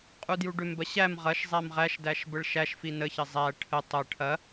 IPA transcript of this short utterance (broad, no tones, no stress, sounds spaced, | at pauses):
qʼ u d j u ɖ ʏ m b ɐ ɕ æ m ʁ ɐ ʃ zˤ æ m ʁ æ ʃ d æ ʃ b ə ɭ ʃ æ ʃ f i n ə ç ɐ zˤ æ ʈʰ ə tˤ ɐ ʈʰ ɐ